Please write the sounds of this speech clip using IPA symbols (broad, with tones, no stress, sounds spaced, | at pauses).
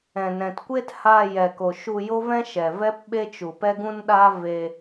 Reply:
ɛ̃˨ n ɛ̃˨ t kʷ e˦ t h aː˧ j ɛ˨ k o˨ ʃ u˧ j o˦ v ɛ̃˦ ʃ ɛ˨ v ɛ˦ p ɓ e˦ t͡ʃ u˨ p ɛ˦ ɡ ũ˦ n ɗ aː˦ v eː˧